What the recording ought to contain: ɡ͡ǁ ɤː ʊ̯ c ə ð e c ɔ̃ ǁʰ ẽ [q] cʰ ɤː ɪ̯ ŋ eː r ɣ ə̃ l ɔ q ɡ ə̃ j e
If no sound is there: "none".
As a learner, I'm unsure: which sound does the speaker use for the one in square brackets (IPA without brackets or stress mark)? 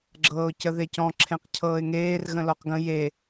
q